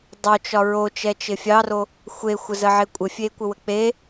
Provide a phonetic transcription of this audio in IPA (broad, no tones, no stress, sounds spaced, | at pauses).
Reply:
dˤ o t͡ʃ ɒ ɹ o t͡ʃ ɛ t͡ʃ ɪ fʲ ɑ r o | xʷ e xʷ ə z ə ʕ ɪ kʷʼ ɪ fʲ e kʷ ə w ə k͡p e